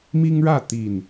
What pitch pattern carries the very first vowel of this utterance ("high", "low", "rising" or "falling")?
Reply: high